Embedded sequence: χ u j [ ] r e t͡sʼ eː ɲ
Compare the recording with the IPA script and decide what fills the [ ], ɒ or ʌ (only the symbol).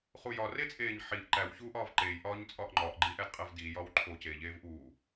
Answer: ɒ